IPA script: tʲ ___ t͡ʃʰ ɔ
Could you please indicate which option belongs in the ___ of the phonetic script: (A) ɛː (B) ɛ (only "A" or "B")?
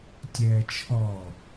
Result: A